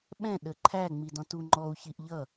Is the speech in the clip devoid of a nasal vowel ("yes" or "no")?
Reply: no